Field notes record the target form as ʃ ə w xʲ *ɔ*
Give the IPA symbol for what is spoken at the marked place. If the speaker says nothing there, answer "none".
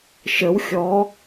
ɔ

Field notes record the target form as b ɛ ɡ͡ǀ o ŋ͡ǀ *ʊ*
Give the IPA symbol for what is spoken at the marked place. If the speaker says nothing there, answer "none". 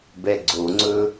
ɵ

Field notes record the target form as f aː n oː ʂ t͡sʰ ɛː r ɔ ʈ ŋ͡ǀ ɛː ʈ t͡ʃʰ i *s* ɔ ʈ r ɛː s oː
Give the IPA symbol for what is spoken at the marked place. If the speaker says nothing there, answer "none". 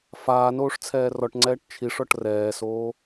ʂ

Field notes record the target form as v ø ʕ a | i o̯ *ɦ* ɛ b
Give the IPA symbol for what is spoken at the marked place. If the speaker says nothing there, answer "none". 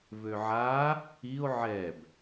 ʕ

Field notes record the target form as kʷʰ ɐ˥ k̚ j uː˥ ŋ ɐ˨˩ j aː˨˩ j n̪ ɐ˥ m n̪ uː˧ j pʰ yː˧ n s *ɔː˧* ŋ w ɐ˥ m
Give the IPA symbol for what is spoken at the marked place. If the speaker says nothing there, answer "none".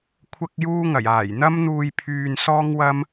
ɔː˥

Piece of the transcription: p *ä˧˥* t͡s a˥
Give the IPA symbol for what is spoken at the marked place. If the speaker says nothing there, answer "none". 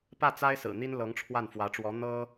ä˥˩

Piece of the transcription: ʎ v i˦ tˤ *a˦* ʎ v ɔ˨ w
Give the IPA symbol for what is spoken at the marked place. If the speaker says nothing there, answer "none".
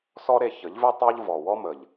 a˦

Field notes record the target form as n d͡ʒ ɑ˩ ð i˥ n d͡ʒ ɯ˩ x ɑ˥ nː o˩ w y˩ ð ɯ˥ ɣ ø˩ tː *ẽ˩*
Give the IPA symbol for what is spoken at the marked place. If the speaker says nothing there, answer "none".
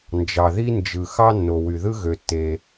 e˩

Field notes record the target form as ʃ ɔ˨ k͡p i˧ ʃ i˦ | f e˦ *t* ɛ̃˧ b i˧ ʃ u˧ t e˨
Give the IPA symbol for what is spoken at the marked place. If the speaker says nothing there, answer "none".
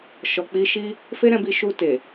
ɾ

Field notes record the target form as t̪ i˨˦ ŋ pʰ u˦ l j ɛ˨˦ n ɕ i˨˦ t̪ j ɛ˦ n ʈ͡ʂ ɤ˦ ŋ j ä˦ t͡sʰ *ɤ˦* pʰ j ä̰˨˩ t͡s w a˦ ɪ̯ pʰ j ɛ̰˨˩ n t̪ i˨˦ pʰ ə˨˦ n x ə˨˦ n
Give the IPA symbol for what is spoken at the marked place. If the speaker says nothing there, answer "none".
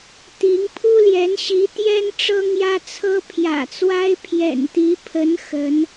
ɤ˦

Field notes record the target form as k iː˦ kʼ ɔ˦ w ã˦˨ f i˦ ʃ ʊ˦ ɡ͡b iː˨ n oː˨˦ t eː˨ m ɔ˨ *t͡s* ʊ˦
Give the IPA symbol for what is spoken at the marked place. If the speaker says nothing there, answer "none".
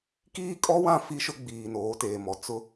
t͡s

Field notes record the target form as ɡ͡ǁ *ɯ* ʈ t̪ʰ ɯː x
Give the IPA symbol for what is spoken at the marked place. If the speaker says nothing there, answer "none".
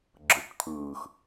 ɯ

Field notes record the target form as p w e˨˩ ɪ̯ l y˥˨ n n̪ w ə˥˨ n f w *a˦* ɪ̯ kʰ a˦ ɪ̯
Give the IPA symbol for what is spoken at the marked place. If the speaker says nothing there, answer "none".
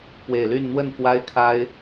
a˦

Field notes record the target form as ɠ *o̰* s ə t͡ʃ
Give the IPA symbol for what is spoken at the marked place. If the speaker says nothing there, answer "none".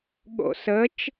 o̰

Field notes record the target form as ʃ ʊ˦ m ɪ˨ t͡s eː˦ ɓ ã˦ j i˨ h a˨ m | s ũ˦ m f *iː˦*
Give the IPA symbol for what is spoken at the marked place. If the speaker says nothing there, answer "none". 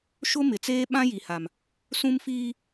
iː˦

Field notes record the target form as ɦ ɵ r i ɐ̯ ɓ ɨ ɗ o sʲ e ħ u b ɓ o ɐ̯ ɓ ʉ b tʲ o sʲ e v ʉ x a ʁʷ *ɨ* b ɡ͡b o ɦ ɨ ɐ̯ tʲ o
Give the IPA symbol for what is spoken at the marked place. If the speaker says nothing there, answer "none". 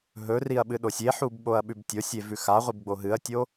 ɨ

